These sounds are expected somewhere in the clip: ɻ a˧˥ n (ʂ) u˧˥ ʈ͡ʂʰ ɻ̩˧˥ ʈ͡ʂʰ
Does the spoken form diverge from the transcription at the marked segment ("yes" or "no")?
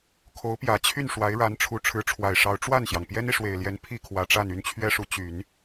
yes